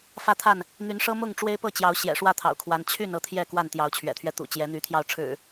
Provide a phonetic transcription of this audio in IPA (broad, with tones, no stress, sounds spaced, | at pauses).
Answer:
f ä˥˨ t̪ʰ a˥˨ n | n̪ y˨˦ n ʂ ɤ˦ m ʊ˥˨ ŋ ʈ͡ʂ w e˦ ɪ̯ p ɤ˥˨ t͡ɕ j ɑ˨˦ ʊ̯ ɕ j ɛ̰˨˩ ʂ w ä˥˨ t̪ʰ ɑ̰˨˩ ʊ̯ kʰ w a˨˦ n t͡ɕʰ y˥˨ n ɤ˥˨ t̪ʰ j ɛ˥˨ k w a˥˨ n t̪ j ɑ˨˦ ʊ̯ t͡ɕʰ ɥ ɛ̰˨˩ t̪ʰ ɥ ɛ˦ t̪ ṵ˨˩ t͡ɕ j ɛ˨˦ n̪ y˨˦ t̪ʰ j ɑ˧ ʊ̯ ʈ͡ʂʰ ɻ̩˨˩